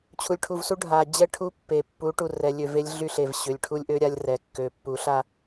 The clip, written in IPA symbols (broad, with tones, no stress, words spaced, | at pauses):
t͡ɕʰu˨lʲʈʰu˨vsu˦ ɖʱa˨ d͡ʑɛ˦ʈʰu˦ pːe˨ pːu˨˦ ʈu˨rɛ˨lʲø˨ ve˦lʲɮy˦ɬe˨v ɕø˨lʲʈʰu˦lʲʔø˦ ɾʲa˦lʲrɛ˨kːø˨ pːu˨˦ɬa˦